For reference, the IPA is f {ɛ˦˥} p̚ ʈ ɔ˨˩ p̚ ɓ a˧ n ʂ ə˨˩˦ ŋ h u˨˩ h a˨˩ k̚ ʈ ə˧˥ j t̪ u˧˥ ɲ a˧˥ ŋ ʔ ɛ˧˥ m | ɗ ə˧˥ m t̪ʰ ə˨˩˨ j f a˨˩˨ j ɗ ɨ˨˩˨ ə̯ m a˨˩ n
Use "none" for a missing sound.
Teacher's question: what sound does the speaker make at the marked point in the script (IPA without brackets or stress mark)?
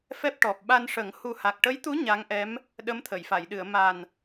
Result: ɛ˦˥